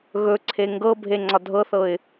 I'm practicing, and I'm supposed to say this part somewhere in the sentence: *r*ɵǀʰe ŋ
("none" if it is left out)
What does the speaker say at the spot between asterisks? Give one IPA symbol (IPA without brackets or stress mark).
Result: ɣ